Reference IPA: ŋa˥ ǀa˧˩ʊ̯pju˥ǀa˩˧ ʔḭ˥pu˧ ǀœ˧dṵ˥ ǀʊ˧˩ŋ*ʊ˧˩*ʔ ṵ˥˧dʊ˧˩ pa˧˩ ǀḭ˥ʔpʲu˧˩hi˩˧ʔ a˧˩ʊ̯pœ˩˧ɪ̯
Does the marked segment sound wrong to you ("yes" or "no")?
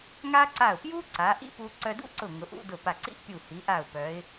yes